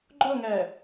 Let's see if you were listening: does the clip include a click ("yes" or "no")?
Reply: yes